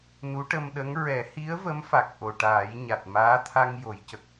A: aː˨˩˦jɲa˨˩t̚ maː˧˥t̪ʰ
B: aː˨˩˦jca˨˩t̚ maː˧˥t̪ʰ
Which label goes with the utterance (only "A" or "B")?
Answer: A